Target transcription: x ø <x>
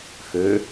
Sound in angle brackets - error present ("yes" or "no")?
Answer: yes